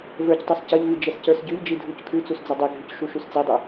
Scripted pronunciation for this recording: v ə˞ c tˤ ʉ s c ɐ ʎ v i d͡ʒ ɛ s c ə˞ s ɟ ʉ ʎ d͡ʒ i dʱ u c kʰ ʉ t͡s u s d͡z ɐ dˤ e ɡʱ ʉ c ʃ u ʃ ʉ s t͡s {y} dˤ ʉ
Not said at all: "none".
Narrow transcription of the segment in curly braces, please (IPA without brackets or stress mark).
i